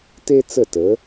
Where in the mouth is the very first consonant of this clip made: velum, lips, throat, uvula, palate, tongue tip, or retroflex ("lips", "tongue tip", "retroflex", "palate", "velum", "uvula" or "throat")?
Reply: tongue tip